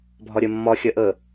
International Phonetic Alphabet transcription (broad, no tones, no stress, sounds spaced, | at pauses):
bʱ ɒ ɾʲ ɜ mː ɒ xʲ ɜ ʔ ə